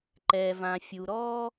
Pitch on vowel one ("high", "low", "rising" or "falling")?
low